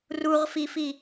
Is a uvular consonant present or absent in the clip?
present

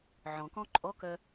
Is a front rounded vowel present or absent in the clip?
present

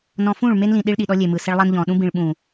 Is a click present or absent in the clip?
absent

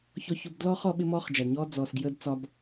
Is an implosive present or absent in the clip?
present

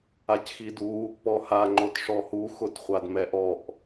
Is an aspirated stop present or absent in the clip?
absent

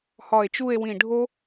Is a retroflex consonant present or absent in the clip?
present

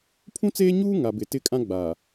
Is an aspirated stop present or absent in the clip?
present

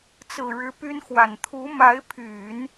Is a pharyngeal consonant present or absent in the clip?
absent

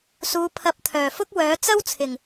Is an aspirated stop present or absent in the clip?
present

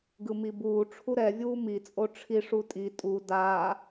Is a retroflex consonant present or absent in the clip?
present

